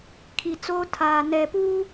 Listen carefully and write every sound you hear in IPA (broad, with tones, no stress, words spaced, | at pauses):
kʰi˨t͡soː˦tʰaː˨ nɛ˨puː˦